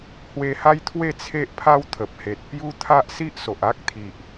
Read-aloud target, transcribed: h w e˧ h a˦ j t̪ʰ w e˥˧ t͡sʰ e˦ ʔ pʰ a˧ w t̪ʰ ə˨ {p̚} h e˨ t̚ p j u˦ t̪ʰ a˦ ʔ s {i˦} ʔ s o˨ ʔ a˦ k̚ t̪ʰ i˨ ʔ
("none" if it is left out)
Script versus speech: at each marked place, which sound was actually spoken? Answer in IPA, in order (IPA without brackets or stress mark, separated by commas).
p̚, i˦